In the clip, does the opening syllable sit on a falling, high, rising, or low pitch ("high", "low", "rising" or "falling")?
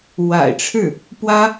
low